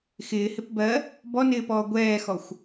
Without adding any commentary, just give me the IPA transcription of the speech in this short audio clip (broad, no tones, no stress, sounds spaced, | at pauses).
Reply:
x ɪː h ɪ p b ɜ | b ɔ n ɪː p ɔː ɡʷ ɛː x ɔ xʷ